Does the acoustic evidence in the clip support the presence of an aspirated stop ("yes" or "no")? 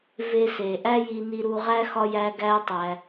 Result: no